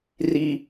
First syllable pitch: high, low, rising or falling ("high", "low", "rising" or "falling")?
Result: high